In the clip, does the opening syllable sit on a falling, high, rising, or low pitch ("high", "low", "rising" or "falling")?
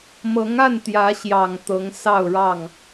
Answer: rising